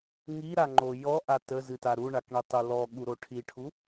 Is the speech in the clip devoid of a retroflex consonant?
no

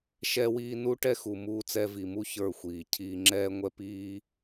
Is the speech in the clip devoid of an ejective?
yes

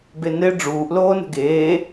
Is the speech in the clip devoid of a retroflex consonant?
no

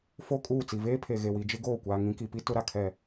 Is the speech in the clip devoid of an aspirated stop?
no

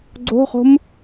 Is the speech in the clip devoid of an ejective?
yes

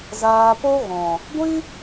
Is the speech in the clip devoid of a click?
yes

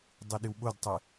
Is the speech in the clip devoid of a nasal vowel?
yes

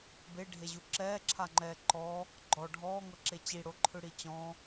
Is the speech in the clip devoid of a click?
no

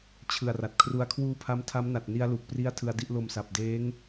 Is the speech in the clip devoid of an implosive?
yes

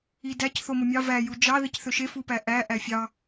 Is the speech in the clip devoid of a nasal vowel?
yes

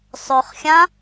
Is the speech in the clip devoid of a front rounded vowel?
no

